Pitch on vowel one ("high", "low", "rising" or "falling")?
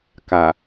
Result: low